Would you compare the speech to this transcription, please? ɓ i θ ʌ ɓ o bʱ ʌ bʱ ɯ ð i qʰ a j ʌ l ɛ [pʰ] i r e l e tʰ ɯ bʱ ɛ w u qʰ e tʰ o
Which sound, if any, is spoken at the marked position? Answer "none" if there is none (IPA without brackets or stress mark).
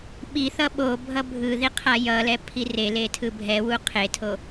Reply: pʰ